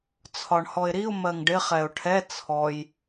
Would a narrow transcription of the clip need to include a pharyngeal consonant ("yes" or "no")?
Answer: no